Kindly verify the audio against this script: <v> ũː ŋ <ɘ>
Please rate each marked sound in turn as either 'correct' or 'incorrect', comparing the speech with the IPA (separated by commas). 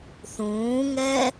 incorrect, incorrect